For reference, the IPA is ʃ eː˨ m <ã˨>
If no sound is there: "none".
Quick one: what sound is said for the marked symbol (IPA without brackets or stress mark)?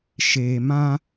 ã˦